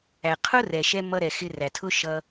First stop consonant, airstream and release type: aspirated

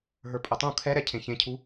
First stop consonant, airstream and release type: ejective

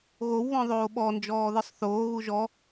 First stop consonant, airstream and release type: implosive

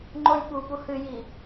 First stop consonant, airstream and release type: click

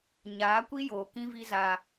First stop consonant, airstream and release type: plain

